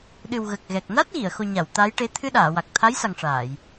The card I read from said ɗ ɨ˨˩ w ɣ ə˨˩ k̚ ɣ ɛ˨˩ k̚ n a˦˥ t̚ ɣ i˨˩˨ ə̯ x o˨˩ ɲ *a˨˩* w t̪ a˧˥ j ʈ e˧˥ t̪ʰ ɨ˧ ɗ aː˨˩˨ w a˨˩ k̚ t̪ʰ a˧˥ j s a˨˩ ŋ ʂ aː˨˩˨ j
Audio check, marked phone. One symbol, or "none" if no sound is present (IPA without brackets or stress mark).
a˨˩˨